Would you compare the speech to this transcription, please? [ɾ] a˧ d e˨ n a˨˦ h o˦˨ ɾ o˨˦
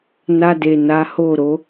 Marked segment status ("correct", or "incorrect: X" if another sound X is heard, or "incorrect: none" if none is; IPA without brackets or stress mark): incorrect: n